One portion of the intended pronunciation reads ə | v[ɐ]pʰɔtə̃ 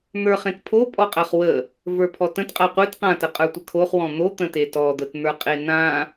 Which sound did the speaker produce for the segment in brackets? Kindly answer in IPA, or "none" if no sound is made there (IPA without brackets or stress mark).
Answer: ə˞